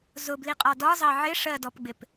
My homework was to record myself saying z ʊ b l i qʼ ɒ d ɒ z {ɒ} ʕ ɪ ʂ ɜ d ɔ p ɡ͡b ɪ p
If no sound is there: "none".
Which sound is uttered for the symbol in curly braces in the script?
ɑ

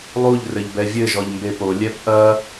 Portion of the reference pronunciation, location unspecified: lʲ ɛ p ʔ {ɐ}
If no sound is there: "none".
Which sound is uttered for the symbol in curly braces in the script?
ɐ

